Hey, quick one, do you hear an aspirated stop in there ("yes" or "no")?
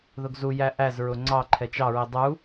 yes